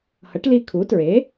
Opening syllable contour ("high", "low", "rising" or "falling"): rising